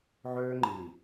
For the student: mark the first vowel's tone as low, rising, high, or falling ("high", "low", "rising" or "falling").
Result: high